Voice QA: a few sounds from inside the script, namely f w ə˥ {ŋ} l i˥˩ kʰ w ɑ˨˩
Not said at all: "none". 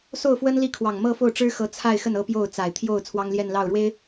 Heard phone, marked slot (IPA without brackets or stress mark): n